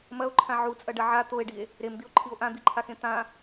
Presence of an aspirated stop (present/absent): present